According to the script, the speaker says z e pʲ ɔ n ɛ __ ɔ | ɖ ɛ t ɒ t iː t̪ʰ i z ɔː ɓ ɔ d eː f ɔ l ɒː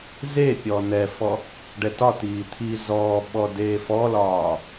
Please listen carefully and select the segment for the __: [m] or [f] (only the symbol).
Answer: f